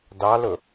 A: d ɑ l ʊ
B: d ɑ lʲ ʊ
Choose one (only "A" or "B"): A